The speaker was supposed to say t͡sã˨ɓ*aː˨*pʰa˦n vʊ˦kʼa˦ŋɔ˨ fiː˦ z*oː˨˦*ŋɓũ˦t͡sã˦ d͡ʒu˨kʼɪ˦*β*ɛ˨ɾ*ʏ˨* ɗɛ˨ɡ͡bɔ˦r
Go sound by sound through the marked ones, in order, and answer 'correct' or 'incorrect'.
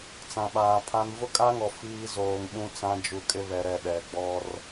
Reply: correct, incorrect, correct, incorrect

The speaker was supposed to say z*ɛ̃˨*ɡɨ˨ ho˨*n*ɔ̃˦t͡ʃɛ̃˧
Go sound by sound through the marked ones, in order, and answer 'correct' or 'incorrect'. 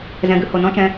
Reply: correct, correct

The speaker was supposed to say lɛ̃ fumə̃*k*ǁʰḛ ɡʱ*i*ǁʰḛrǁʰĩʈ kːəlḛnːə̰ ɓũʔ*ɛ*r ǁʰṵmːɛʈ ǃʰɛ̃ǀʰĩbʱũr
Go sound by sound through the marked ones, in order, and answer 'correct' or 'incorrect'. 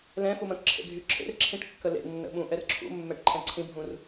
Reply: correct, incorrect, correct

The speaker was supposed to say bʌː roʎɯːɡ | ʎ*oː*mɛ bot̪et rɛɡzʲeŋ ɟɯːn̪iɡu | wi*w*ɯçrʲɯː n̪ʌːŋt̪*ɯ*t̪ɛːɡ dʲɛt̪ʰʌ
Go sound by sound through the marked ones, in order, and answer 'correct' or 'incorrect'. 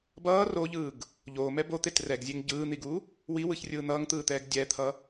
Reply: correct, correct, incorrect

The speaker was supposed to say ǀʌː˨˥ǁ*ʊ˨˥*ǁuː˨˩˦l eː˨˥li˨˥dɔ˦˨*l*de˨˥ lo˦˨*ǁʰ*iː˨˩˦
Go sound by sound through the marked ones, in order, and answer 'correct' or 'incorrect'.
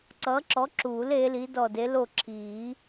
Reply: incorrect, incorrect, correct

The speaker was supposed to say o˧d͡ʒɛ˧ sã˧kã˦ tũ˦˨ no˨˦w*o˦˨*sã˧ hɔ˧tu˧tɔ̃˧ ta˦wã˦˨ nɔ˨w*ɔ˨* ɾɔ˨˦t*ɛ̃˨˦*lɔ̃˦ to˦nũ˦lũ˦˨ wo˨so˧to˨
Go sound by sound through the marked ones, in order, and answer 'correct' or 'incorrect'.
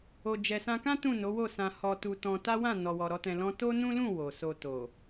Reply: correct, correct, incorrect

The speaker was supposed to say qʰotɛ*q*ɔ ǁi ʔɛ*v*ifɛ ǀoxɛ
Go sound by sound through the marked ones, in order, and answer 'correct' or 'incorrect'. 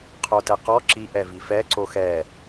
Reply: correct, correct

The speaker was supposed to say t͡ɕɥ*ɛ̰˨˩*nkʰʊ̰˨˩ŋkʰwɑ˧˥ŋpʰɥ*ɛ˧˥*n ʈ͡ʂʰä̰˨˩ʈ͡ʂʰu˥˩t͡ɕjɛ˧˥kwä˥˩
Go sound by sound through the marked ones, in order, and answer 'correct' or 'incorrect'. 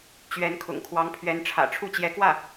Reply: incorrect, correct

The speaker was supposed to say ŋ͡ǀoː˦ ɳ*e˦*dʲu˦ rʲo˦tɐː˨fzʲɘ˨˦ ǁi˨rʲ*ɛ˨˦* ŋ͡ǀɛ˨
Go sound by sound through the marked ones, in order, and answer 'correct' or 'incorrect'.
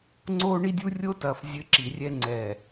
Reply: incorrect, incorrect

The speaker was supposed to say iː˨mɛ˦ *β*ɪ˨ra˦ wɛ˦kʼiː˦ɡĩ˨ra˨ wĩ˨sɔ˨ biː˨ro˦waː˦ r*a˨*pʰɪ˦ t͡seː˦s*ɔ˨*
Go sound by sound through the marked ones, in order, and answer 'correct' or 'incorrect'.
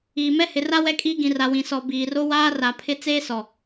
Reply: incorrect, correct, correct

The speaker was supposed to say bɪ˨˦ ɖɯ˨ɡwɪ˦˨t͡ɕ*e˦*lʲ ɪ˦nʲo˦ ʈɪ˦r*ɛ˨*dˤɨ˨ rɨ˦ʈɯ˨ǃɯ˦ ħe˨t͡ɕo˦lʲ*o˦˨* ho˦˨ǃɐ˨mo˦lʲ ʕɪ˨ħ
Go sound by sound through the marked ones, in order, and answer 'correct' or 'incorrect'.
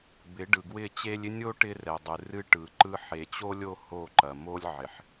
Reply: correct, correct, correct

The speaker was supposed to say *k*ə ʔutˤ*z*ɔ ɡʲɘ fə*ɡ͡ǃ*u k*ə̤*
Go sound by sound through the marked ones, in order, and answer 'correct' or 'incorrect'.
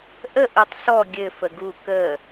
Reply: incorrect, incorrect, incorrect, incorrect

